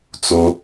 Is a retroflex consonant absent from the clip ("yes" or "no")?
yes